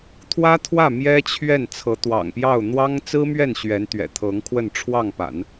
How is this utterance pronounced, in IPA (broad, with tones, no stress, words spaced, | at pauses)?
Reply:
t̪ʰwä˥t̪ʰwä˥˩ mjɛ˥t͡ɕʰɥɛ˥˩n t͡sʰɤ˧˥t̪wɑ̰˨˩ŋpjɑ˥˩ʊ̯ n̪wɑ˥ŋ t͡sɹ̩˥mɥɛ˥˩n ɕɥɛ˧˥nt̪ɥɛ̰˨˩t̪ʰɤ˧˥ŋkʰwə˥˧n ʈ͡ʂʰwɑ˥˩ŋpa̰˨˩˦n